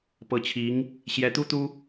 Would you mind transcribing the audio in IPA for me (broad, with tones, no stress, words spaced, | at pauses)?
pɤ˧˥t͡ɕʰi˧˥ŋ | ɕjɛ˧˥t̪u˥t̪u˥